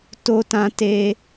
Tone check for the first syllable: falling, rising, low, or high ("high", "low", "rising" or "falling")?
high